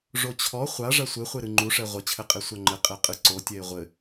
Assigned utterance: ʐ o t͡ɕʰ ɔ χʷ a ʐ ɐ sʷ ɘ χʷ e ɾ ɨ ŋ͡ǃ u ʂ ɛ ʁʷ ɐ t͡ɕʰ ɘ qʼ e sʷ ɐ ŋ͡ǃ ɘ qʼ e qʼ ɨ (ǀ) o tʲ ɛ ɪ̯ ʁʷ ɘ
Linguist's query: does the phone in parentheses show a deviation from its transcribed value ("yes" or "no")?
no